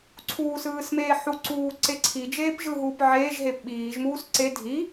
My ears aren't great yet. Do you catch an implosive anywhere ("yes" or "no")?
yes